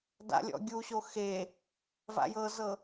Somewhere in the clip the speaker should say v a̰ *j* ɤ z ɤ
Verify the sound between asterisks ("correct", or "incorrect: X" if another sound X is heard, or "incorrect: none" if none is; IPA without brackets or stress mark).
correct